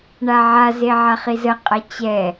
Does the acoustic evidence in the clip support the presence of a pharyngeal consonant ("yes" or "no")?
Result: yes